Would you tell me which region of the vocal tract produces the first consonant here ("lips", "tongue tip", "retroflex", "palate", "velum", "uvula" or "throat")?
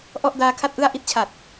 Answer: throat